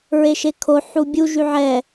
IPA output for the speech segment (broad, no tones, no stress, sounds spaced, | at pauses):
ɹ e ʃ e kʰ o ħ u bʲ u ʒ y ʕ ɛ